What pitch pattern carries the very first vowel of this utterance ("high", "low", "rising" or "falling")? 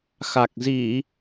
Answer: low